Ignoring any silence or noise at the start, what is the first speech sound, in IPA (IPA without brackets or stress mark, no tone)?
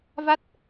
v